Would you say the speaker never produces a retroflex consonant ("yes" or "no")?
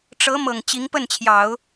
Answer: no